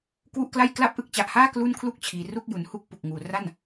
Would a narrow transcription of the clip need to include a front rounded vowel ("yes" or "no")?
no